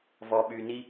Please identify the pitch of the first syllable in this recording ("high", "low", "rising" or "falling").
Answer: low